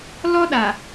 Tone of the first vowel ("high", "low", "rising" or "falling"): high